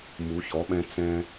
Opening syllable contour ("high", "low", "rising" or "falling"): rising